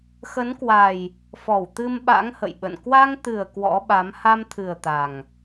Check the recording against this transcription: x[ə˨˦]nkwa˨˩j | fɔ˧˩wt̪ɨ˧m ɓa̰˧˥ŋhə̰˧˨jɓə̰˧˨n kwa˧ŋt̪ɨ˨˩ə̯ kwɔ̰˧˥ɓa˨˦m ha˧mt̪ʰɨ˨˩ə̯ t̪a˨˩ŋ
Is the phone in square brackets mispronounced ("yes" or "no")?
no